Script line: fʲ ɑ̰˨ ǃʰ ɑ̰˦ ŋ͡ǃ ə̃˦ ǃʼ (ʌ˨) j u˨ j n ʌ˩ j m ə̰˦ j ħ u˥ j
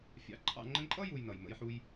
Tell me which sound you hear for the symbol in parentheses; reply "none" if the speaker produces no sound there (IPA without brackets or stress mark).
ʌ˥